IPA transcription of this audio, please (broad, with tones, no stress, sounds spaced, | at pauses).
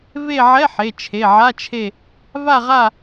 v e˦˨ ʕ ɛ˧˥˧ ħ e˩˧˩ t͡ʃʰ e˩˧˩ ʕ a˧˥˧ t͡ʃʰ e˦˨ | v a˦˨ ʁ a˦˨